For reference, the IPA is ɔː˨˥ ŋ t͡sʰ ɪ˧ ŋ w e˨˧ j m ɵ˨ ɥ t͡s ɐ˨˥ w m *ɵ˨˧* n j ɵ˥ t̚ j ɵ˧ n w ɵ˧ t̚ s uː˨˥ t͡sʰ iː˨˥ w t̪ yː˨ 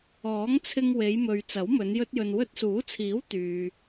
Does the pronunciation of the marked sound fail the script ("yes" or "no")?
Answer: no